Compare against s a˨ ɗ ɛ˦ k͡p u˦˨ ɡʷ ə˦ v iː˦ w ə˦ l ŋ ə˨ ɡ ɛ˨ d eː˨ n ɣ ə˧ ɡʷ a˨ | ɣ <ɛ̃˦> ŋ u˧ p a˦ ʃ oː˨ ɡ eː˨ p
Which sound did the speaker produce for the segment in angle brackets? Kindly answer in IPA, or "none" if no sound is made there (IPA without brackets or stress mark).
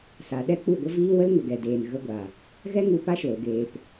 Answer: ɛ˦